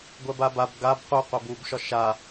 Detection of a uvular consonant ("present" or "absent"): present